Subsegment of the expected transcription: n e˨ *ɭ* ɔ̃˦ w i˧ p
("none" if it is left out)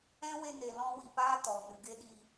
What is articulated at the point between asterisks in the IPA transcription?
l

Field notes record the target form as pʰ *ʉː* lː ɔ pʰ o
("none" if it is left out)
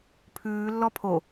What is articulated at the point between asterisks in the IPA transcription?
ʉː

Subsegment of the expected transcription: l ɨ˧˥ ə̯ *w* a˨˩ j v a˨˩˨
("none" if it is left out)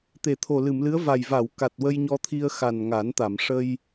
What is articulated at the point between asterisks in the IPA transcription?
v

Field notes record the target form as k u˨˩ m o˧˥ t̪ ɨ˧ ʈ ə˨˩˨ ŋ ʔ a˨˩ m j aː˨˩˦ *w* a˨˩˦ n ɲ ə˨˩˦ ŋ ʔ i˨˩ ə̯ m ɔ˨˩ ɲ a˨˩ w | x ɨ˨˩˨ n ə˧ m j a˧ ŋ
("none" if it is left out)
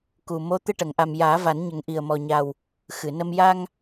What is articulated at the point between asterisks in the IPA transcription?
v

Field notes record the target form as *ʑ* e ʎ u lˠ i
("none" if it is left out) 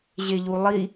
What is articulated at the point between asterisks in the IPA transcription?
ʑ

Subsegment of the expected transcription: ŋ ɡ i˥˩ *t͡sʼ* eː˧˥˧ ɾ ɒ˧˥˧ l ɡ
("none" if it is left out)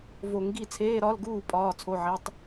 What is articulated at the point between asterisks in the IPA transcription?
t͡sʰ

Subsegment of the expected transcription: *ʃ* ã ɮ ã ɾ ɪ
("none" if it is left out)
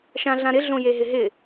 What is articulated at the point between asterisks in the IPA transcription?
ʃ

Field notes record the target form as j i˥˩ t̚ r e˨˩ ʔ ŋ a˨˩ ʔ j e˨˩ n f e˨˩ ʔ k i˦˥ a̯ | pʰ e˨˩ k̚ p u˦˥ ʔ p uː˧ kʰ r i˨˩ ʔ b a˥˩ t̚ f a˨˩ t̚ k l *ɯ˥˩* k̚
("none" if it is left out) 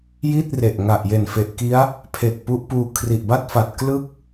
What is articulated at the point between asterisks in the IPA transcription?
ɯ˥˩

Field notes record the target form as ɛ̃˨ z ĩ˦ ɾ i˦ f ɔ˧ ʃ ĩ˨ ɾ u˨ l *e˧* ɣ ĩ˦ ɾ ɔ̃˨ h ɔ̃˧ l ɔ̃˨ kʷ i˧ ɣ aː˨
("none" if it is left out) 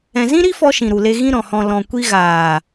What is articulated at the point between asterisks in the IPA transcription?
e˧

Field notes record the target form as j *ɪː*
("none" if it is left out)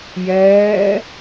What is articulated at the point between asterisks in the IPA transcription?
ɛː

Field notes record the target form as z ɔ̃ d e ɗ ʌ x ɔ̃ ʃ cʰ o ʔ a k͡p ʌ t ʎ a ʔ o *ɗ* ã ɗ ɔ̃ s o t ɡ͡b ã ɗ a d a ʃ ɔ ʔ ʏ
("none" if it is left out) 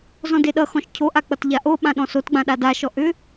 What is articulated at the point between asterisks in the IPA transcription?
ɓ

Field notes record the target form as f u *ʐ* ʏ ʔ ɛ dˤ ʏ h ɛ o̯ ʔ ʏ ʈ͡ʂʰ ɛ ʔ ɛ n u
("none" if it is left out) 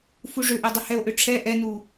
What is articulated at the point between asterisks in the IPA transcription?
ʐ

